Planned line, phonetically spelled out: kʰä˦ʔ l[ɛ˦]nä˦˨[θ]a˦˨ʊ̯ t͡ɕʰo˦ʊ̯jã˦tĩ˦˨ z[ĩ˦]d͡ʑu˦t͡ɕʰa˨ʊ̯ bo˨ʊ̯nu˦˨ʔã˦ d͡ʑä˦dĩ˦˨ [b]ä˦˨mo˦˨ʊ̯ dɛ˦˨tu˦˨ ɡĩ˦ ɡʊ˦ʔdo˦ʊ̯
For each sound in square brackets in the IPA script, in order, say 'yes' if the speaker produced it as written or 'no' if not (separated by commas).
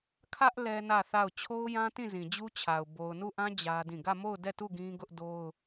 yes, yes, no, no